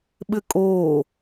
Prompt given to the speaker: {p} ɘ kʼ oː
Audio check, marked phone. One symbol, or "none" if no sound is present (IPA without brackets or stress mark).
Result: ɓ